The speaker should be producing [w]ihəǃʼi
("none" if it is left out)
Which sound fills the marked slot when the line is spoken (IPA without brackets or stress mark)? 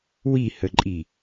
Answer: w